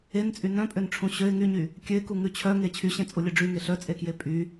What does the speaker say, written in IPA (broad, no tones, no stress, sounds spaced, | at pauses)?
e n t͡sʼ y n œ̃ pʼ ø n ʈ͡ʂʰ ũ ɕ ø ɪ̯ ŋ y ɲ y | kʲ ø ɪ̯ k u ŋ ʉ t͡ɕʰ œ ŋ e t͡ɕʰ y ɕ ẽ t͡sʼ u lʲ œ ɖ͡ʐ y ŋ e ɬ œ t͡sʼ e k j e pʼ y